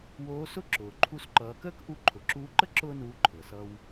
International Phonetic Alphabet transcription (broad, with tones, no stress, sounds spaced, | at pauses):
w oː˧˥ s ʊ˥ ǁ ʊː˩ ǃʰ u˧ s ǃ ʌː˩˧ k əː˥ k ʔ u˧˥ ǃʰ ʊ˩˧ ǁ uː˧˥ ǃ ə˥ ǁ ʊː˥ n uː˧˥ ǃʰ ɤ˩ s ʌ˧ w